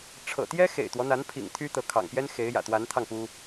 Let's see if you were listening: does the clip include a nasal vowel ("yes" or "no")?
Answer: no